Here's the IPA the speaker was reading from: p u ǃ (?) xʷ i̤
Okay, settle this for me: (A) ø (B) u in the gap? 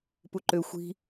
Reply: A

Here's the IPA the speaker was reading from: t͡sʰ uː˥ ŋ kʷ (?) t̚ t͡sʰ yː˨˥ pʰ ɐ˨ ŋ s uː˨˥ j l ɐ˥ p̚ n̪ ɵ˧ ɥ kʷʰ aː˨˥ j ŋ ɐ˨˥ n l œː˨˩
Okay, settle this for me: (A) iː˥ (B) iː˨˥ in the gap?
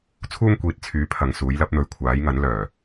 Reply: B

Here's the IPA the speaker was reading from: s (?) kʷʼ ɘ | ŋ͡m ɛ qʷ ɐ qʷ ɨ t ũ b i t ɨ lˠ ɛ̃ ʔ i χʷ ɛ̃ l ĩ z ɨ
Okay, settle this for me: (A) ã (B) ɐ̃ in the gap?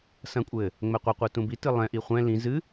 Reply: B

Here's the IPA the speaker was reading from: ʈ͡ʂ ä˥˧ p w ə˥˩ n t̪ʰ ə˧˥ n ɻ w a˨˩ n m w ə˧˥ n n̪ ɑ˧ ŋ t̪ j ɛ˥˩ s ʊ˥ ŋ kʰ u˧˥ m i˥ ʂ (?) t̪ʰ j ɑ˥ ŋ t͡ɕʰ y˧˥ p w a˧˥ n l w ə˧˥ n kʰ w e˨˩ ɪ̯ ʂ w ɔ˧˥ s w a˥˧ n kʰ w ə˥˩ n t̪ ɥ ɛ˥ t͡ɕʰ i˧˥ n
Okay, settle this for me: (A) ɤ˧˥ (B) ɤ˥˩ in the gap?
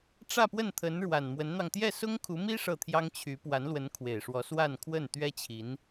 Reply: B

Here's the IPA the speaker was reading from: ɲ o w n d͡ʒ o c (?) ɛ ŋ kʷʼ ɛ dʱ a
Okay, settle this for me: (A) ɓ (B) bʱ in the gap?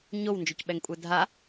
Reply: A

